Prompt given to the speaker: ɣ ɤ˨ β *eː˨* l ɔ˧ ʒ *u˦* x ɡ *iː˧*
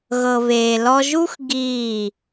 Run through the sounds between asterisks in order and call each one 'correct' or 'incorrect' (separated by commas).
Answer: correct, correct, incorrect